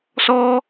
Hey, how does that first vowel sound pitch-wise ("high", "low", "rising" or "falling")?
high